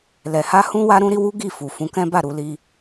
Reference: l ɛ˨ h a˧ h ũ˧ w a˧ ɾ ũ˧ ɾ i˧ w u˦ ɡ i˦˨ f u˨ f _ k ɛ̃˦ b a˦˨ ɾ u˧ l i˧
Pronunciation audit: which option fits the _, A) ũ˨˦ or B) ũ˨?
A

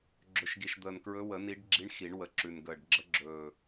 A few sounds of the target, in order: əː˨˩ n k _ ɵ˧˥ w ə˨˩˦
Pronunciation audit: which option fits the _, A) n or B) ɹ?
B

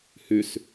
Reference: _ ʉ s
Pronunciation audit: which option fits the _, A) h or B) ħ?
A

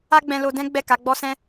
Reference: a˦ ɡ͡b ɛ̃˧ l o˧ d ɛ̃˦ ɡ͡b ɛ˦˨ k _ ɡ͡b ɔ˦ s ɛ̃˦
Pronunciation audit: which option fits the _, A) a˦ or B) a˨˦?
B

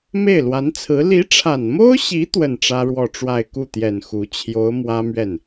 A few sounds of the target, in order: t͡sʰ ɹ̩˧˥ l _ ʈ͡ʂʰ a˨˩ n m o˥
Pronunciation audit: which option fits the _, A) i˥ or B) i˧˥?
B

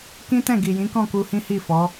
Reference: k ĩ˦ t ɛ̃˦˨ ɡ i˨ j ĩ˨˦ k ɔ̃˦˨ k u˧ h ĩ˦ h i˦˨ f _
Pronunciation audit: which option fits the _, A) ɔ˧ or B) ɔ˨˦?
B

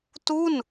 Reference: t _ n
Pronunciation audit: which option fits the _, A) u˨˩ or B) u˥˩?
B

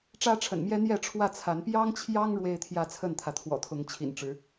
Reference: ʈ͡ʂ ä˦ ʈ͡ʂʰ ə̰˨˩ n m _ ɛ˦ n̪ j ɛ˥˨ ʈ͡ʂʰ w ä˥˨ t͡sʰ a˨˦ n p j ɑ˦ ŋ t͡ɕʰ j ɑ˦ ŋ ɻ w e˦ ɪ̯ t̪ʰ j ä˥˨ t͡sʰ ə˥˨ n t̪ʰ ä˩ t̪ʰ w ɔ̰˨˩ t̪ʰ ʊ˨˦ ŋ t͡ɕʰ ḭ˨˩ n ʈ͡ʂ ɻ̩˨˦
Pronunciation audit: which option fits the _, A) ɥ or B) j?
B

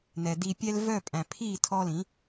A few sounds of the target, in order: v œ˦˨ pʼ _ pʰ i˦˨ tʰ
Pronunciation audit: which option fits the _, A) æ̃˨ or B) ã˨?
A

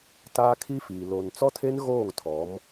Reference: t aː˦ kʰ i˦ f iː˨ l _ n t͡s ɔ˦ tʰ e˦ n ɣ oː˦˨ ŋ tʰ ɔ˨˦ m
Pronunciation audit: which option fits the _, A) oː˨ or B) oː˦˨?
A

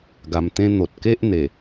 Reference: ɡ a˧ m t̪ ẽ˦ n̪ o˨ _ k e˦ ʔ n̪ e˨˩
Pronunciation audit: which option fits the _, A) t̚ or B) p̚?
A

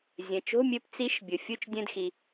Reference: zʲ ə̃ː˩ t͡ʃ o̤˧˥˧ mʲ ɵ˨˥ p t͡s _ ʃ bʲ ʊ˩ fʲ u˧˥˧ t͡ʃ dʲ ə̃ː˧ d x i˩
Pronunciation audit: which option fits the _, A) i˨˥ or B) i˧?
A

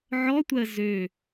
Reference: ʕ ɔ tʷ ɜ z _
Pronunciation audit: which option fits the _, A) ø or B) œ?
A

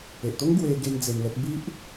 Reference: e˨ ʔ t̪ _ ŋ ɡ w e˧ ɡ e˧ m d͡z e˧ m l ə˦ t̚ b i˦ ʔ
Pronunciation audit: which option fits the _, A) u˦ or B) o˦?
B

